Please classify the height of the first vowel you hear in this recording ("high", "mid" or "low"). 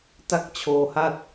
low